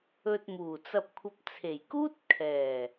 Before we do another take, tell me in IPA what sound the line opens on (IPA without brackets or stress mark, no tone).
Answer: ɵ